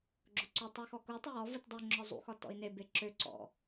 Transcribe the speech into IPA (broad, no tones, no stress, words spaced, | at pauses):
ɡ͡ǁʊǀutˤa xɔkutˤʊ jɔ vɯtdˤuŋ͡ǁɒ zˤṵxɒ tɔ̰i̯nebe ǁø ǀɔ̰